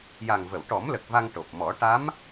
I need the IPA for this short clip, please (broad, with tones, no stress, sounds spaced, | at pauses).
j a˨˩ ŋ v ə˨˩˨ w ʈ ɔ˨˩˦ m l ə˨˩ k̚ v a˧ ŋ ʈ o˨˩ p̚ m ɔ˨˩˦ ʈ a˧˥ m